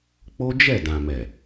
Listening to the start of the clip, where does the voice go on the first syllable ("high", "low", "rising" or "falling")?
high